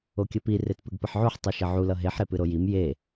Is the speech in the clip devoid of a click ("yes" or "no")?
yes